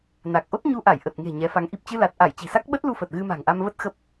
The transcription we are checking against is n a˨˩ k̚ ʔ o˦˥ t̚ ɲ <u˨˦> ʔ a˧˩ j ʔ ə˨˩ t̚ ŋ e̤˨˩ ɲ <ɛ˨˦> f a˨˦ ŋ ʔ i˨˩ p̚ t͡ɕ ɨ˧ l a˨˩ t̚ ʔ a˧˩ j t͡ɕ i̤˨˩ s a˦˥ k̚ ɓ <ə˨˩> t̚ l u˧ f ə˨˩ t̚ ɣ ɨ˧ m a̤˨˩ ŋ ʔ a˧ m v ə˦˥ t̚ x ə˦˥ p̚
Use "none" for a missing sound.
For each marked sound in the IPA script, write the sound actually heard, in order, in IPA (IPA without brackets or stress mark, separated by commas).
u˧, ɛ˨˦, ə˦˥